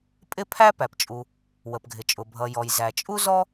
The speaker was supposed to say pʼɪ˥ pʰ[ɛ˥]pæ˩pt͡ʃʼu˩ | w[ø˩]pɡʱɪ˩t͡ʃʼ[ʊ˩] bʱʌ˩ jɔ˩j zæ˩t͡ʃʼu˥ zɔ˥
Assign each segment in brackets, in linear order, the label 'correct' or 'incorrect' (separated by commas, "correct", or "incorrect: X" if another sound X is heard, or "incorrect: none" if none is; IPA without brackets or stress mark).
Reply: incorrect: æ˥, incorrect: ə˩, correct